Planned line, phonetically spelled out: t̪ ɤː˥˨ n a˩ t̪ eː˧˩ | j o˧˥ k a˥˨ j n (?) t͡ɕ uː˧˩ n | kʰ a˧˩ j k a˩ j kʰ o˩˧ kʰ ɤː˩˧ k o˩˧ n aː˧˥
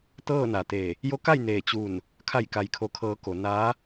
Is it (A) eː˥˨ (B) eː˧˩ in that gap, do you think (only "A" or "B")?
B